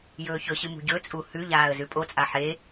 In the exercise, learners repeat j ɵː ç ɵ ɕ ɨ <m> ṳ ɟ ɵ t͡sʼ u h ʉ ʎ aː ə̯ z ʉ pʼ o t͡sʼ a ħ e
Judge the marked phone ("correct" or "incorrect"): correct